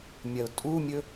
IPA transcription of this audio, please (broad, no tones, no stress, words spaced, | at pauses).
mʲɐʊ̯tʼumʲɵ